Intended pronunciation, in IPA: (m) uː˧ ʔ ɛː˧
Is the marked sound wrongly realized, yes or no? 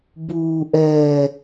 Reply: yes